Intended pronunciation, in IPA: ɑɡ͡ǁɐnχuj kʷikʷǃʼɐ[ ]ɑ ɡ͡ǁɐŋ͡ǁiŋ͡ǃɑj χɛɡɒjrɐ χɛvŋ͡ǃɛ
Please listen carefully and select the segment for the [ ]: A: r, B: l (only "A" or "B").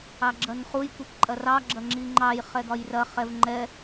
A